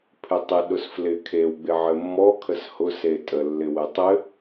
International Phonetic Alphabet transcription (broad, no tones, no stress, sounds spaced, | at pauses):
pʰ ɪ tˤ ɪ ɗ ʊ s f l ɪ kʰ e w ɡ͡b ɪ ʕ ɘ mː ɔ kʰ ə s h ʊ s e tʼ ə lː ɪ w ɘ tˤ ɘ